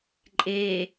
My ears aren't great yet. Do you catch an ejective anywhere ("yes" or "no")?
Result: yes